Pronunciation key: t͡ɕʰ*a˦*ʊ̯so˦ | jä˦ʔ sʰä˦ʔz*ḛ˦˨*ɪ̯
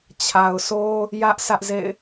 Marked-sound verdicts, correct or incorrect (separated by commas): incorrect, correct